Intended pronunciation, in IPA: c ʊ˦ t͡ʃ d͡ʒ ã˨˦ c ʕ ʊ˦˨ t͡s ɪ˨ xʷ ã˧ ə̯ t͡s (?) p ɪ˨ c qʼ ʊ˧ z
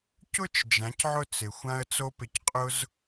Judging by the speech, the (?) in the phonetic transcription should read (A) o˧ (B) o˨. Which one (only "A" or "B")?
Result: A